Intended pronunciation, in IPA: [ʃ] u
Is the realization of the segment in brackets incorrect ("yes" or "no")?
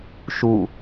no